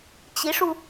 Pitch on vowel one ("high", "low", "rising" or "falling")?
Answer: rising